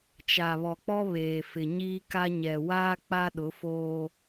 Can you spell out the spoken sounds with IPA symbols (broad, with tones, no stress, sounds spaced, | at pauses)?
t͡ʃ a˨ β ɔ˨ k͡p ɔ˦ β eː˨ f ɪ˨ ɲ iː˦ k a˦ ɲ ɛ˨ w aː˦ k͡p a˦ ɗ ʊ˨˦ f oː˦